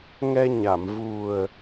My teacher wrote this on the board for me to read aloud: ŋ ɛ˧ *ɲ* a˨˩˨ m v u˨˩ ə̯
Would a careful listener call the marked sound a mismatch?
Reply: no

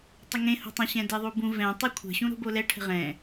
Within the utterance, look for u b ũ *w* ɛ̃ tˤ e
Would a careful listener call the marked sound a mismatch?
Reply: yes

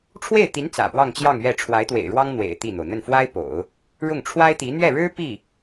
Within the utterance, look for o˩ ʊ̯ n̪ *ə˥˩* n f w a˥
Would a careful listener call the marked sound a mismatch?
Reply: no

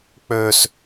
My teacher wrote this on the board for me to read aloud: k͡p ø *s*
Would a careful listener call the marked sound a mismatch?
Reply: no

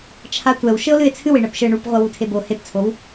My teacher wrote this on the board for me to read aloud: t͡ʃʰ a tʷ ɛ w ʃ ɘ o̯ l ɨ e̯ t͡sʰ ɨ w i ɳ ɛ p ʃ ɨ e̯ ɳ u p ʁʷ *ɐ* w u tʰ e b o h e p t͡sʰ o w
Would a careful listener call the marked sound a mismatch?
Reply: no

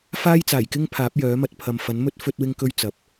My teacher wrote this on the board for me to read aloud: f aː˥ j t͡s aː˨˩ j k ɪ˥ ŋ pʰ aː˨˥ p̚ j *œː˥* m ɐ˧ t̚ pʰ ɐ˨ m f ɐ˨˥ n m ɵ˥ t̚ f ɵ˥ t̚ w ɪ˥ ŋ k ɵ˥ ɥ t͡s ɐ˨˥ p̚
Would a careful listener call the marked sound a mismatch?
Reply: yes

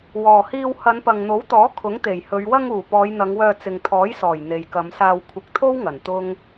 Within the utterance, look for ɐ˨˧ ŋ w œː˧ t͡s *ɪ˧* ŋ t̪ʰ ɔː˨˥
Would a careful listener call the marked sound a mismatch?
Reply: yes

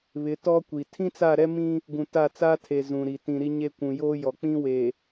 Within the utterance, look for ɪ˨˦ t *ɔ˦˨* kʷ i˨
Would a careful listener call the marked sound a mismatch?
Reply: yes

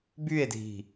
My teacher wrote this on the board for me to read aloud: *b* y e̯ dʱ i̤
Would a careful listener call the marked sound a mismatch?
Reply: no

